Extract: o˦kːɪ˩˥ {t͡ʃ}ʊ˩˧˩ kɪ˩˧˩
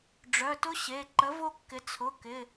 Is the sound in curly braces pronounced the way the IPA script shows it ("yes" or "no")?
no